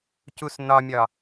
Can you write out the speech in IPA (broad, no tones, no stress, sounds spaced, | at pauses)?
c u s n ɒ mʲ ɒ